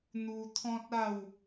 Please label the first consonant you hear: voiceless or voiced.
voiced